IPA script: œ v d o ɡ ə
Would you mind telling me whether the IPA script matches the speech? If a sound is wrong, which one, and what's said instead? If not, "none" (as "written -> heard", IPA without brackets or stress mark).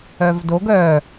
ə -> œ